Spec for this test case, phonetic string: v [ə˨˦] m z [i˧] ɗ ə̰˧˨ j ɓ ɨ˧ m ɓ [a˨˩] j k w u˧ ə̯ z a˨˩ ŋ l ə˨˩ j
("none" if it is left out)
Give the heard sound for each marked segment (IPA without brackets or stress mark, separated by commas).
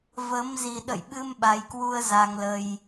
əː˨˦, i˨˩, a˨˩